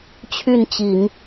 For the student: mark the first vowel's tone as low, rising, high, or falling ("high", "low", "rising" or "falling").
falling